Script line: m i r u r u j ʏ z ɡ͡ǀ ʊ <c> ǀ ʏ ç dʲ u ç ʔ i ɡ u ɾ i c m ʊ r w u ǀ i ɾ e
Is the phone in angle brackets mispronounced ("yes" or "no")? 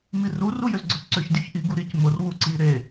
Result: no